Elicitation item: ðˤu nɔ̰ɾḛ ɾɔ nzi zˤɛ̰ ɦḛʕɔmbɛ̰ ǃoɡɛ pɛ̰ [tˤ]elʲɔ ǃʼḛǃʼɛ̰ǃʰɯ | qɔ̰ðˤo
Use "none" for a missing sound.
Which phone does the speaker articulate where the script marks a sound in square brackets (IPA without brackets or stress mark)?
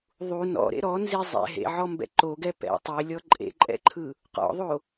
tˤ